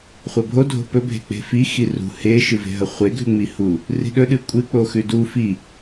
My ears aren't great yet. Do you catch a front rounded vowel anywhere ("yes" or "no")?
no